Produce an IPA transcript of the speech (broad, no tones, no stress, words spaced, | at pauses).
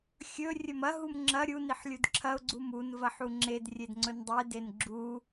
xʲɵ rʲɵmɐ ɦumŋ͡ǁɐ ɾʲu niħlʲudǁʰɐʊ̯ ɡ͡ǀumun vɐħuŋ͡ǁed rʲedŋ͡ǀɵndˤe denɡ͡ǁu